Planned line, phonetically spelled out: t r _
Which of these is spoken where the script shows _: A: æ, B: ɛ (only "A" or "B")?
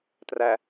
A